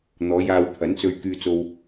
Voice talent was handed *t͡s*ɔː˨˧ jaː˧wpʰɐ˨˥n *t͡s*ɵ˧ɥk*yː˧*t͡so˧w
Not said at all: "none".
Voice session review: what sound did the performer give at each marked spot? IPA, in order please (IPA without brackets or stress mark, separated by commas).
n̪, t͡s, yː˧